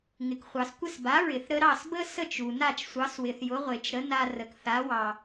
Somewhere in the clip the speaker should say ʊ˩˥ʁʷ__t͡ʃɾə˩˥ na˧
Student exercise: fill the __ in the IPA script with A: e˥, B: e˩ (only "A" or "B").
B